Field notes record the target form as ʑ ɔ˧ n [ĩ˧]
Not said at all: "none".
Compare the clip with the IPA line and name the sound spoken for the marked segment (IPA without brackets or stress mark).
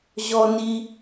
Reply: i˧